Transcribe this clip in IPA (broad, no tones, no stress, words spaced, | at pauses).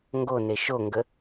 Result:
ŋɡone ʃoŋɡə